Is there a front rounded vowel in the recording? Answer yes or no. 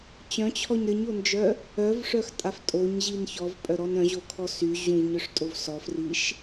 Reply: yes